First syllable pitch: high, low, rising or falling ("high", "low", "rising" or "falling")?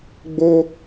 high